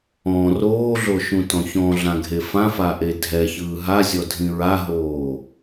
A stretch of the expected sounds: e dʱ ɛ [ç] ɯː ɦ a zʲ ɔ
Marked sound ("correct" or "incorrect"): correct